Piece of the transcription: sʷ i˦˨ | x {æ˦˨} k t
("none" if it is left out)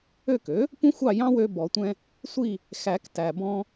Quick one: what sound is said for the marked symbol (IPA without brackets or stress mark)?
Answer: æ˨˩˦